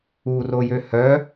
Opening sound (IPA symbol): u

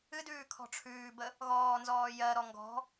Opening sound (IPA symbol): ɨ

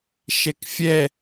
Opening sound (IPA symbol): ʃ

